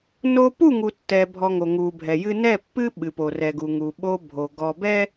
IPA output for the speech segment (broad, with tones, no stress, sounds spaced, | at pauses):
n o˦ p u˦˨ ŋ u˨ tː ɛ˨ bʱ ɔ˨ ŋ o˨ ŋ u˨ bʱ ɛ˨ j ɨ˦ n ɛ˦˨ pː ɨ˦ ɓ ɨ˨ p o˨ r ɛ˨ ɡ u˨ ŋ u˨ ɓ o˦ bʱ o˨ ɡ ɔ˨ b ɛ˦